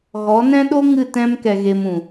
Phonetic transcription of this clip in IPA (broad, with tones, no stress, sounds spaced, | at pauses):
ɣ ɔ˨˦ n ɛ̃˦ ɗ o˦ ŋ ɨ˦˨ t ɛ̃˦ m k ɛ˧ ɣ e˧ m ũ˨